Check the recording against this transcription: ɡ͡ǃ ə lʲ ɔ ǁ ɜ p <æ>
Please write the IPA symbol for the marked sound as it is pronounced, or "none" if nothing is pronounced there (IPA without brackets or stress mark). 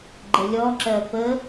ə